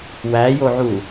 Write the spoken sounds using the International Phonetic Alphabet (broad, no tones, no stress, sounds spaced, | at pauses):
w æ j o ʕ u